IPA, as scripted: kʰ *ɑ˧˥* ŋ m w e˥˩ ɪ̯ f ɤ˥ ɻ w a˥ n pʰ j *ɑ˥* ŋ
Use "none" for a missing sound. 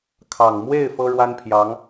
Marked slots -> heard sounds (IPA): ɑ˨˩, ɑ˧˥

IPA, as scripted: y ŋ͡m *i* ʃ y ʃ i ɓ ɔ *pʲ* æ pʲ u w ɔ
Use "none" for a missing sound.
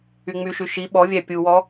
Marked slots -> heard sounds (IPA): y, vʲ

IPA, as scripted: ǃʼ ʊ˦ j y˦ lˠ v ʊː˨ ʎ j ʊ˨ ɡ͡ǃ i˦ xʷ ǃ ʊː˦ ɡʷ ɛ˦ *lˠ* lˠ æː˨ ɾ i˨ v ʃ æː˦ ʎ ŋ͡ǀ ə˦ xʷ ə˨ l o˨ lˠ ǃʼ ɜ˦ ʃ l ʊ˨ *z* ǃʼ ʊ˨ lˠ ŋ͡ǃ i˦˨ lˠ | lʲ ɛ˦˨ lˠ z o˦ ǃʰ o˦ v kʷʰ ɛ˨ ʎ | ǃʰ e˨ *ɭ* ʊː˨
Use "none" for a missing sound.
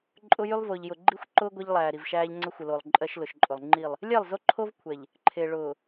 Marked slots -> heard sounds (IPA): ʎ, ʃ, ɭ

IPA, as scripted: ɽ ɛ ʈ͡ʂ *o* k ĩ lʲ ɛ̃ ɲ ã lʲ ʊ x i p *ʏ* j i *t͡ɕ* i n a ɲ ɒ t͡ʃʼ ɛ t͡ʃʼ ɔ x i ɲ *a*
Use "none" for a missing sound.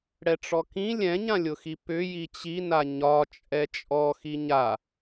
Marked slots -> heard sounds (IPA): ɔ, ʏ, t͡ɕ, a

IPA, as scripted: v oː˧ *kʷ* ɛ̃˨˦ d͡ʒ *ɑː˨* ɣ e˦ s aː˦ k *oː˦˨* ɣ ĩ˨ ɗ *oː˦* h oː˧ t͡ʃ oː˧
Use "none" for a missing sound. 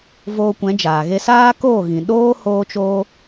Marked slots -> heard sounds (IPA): kʷ, aː˨, oː˦˨, oː˦

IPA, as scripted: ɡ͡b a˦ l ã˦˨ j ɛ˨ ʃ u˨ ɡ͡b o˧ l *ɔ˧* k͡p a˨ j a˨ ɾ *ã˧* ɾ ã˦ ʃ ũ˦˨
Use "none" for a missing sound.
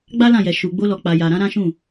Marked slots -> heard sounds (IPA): ɔ˨, ã˨˦

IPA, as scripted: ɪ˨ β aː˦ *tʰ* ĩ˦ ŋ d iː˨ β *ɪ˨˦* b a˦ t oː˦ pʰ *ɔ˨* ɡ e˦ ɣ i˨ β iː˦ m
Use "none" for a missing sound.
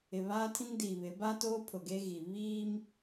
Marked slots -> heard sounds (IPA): tʰ, ɪ˨˦, ʊ˨

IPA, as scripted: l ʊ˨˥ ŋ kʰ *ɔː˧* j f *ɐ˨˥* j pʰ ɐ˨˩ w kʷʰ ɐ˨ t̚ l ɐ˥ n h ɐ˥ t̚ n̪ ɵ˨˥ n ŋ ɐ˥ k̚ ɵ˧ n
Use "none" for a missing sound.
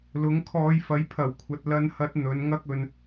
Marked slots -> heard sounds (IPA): ɔː˧, ɐ˨˥

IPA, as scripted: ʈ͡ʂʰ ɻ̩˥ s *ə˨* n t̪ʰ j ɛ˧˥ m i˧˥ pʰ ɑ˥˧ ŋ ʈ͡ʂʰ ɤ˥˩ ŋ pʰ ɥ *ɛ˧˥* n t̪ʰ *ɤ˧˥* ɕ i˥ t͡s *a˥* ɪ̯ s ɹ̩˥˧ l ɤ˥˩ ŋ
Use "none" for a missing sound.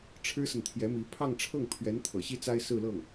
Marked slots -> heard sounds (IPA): ə˨, ɛ˧˥, ɤ̰˨˩, a˥

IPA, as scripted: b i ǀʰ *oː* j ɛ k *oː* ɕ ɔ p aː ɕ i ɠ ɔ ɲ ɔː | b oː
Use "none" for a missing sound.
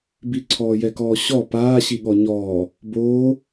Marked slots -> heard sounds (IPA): ɔː, ɔː

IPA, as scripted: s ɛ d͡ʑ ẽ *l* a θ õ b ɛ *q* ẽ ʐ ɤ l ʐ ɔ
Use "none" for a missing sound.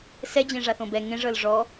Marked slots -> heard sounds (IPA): ʐ, ŋ

